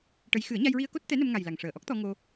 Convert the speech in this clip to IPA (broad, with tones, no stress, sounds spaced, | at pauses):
ʈ ə˧˥ j x ɨ˨˩˦ ə̯ ɲ a˧ j ɹ i˧ ə̯ k o˦˥ t̚ t̪ ɛ˧˥ n ə˧ m ŋ a˨˩ j l a˨˩ ŋ ʂ əː˨˩ ʔ ɔ˦˥ k̚ t̪ ɔ˧ ŋ o˧